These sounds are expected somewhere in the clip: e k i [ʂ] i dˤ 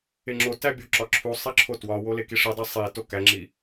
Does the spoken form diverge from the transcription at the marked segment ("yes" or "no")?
no